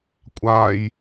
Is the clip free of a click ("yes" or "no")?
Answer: yes